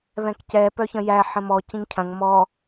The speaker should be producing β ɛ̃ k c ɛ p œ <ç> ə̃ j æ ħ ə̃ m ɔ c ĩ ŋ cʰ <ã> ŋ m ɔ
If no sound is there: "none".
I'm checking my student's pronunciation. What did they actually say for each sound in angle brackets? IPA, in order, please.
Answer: ç, ɐ̃

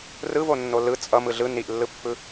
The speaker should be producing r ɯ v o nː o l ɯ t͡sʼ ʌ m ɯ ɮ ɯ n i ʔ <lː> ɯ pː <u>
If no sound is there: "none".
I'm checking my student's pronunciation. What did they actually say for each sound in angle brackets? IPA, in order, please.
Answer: lː, ɯ

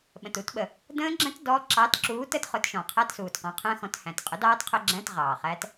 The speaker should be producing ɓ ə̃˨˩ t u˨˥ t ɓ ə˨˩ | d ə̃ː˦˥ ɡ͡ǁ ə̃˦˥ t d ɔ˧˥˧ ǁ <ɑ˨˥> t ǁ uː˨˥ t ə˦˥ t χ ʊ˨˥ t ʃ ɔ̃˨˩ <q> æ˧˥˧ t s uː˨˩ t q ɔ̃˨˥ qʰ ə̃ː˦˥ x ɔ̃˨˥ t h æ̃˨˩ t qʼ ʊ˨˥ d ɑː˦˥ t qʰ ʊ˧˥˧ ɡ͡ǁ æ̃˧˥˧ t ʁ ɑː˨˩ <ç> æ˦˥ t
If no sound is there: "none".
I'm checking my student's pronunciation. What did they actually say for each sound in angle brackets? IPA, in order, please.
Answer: ɑ˨˥, qʰ, χ

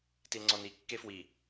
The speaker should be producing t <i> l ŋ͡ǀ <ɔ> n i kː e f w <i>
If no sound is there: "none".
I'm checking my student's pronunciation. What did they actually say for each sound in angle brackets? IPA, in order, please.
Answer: i, ɔ, i

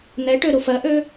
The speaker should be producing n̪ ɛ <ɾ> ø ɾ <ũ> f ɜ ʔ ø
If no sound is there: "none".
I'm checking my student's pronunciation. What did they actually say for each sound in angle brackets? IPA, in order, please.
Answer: ʈ, u

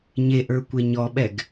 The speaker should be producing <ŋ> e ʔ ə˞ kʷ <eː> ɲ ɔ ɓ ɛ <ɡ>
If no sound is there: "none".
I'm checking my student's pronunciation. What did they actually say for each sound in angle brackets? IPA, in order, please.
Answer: ɲ, e, ɡ

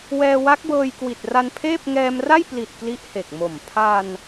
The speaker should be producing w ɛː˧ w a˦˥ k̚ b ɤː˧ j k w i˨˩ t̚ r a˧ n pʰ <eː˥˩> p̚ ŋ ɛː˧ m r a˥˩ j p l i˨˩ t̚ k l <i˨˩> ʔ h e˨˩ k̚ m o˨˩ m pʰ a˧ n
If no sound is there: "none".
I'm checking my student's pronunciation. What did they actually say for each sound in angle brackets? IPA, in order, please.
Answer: eː˥˩, i˦˥

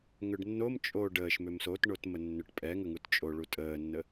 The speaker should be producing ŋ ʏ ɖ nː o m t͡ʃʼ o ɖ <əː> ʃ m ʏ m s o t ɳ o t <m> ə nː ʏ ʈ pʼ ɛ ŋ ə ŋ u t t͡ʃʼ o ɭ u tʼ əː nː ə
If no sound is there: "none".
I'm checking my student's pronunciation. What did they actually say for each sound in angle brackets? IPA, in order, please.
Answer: əː, m

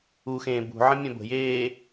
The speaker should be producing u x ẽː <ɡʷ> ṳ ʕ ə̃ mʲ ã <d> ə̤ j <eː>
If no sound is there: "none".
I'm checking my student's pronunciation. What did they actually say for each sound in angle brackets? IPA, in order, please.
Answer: b, b, eː

